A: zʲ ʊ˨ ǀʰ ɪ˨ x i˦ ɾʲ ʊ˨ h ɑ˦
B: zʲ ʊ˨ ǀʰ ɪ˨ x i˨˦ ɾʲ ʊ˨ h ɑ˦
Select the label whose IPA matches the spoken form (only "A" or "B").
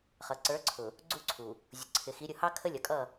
B